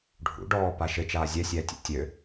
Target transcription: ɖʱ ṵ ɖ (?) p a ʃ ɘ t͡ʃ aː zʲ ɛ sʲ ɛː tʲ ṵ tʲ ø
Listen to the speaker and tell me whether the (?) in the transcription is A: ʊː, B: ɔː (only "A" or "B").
B